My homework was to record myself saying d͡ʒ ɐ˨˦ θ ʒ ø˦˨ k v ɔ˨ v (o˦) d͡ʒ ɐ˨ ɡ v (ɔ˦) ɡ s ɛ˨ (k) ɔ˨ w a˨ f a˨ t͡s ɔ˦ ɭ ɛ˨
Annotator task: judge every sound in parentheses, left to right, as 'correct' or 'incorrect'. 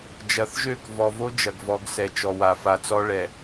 correct, incorrect: ɔ˨˦, incorrect: t͡ʃ

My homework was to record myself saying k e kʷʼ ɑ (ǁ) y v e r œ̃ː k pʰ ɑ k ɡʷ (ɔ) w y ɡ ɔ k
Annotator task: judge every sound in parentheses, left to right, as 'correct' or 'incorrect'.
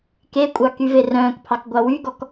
incorrect: k, incorrect: ɑ

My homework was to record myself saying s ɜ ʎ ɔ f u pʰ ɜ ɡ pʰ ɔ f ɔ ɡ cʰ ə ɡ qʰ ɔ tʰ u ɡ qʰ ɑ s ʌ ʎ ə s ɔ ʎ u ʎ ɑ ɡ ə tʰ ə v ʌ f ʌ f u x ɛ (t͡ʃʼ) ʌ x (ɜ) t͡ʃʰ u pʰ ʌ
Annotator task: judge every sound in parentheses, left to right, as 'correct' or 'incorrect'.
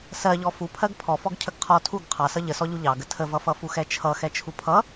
incorrect: t͡ʃʰ, incorrect: ɛ

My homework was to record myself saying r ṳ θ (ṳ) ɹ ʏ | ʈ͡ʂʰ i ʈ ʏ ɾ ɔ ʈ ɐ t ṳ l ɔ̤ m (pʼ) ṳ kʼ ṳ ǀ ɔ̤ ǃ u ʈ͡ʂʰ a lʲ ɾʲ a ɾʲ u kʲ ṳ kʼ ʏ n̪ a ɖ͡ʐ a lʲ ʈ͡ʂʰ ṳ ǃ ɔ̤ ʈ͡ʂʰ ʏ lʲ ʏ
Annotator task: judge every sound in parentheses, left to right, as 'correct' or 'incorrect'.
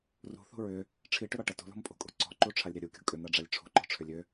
correct, correct

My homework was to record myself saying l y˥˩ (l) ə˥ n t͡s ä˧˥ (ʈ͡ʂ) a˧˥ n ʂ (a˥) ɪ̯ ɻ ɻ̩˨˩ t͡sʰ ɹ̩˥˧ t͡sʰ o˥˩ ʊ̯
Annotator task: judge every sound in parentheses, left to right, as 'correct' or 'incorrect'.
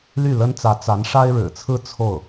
correct, incorrect: t͡s, correct

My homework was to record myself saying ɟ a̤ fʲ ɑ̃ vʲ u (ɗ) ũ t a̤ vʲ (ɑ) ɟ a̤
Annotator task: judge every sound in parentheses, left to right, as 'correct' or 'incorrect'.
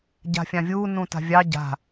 incorrect: n, correct

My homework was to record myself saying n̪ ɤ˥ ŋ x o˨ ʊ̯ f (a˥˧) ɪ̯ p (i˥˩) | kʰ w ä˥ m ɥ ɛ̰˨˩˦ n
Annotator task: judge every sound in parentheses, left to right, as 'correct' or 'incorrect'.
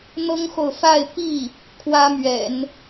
correct, correct

